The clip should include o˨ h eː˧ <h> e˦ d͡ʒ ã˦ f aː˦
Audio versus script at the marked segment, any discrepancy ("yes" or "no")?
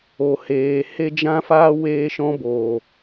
no